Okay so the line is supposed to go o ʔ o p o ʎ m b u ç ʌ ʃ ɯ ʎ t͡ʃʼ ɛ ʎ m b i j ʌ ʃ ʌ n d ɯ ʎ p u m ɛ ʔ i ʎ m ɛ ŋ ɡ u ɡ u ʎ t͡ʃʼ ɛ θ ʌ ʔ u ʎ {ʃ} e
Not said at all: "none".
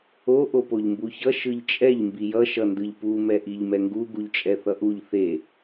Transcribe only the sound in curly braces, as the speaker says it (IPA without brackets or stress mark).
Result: θ